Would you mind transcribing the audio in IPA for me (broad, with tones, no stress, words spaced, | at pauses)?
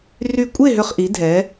ry˧˩kʷʼe˥˨ɦʏ˧˩χ ʔi˩˥dʱɛ˩˥